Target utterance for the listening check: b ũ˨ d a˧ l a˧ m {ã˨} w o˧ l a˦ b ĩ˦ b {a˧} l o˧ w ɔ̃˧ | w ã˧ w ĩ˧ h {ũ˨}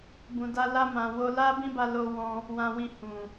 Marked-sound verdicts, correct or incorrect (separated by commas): correct, correct, correct